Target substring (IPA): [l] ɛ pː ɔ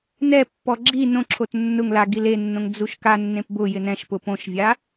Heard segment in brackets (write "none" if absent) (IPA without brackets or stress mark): n